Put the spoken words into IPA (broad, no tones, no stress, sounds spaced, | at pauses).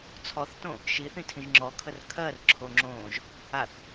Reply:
t͡sʰ ɔ θ t õ | ʃ i θ ĩ tʰ ĩ ʒ ŋ͡ǁ ɔ kʰ ə r kʰ ɜ r ǁʰ o ŋ͡ǁ õː ʒ | a θ